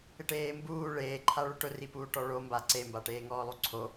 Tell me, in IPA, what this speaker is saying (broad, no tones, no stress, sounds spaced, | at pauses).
ɪ ʈ eː m b uː ɭ eː ǃʰ a ɭ ʊ ʈ ʊ r i p uː ʈ ɔ ɭ o m b a ǀ e m b a ʈ eː ŋ ɔː lˠ u ǀʰ o